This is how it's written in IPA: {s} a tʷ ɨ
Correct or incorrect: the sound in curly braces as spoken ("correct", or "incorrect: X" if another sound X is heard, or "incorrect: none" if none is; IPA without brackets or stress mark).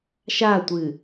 incorrect: ʃ